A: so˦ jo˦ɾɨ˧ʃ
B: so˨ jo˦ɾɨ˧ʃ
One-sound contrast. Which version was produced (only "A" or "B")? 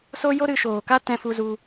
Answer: A